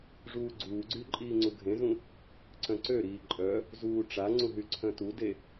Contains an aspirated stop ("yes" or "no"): yes